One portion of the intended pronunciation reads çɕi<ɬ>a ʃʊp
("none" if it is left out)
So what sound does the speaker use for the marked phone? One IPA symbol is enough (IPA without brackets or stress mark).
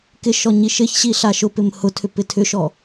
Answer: ɬ